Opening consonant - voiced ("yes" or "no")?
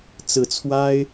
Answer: no